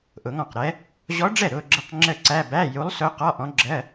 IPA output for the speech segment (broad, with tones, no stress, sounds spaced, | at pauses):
ʔ ʊ˨˩˦ ŋ ɔ̃˥˩ q ɾ ɛ˧˥ | ʑ ɔ˧˥ ɖ͡ʐ ɛ˥˩ ɾ ʊː˥˧ ɡ͡ǁ ə˥˩ q ŋ͡ǁ əː˥˧ ǀ æ˧˥˧ b æ˧˥˧ j u˧˥ lˠ s ʊː˧˥ q ɒ˧˥˧ ʔ ɔ̃˧˥ ɡ͡ǁ ɜ˧˥˧